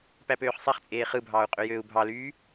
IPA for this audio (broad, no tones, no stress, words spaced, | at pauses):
pæpøːχsˤeχt͡sʼeː χɯbʱɑːu̯ qʼøjøːu̯bʱɑlyː